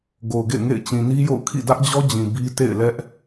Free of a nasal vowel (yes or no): no